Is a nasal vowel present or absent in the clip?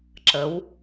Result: absent